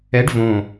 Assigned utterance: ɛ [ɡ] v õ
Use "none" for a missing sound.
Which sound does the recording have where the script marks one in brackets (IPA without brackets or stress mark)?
ɖ